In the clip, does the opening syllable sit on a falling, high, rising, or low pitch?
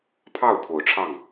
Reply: falling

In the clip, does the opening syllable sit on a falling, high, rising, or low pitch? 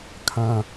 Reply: low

